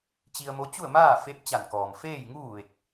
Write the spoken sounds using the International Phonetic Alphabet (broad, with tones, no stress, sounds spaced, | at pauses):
t͡ɕ i˧ ə̯ m o˧˥ t͡ɕ u˥˨ ə̯ m aː˥˨ f e˧˥ p̚ t͡ɕ a˧˩ n k ɔː˩ m f eː˥˨ j ŋ uː˥˨ ʋ e˧˩ k̚